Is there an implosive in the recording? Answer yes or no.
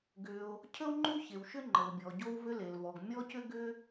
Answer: no